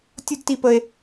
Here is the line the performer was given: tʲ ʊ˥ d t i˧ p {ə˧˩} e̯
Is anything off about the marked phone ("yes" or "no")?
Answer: yes